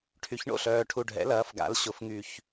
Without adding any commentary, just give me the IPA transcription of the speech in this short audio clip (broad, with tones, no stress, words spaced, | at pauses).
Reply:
ʈʰy˩˧çɳo̰˨˩ɬœː˨˩ʈʰu˨˩ ɖʱɛ̰˩˧lɐː˩˧f ɡa̰˩˧l ɕʊ˨˩fŋy˨˩ç